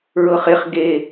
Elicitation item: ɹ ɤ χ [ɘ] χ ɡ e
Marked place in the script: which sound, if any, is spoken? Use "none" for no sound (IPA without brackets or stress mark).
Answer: e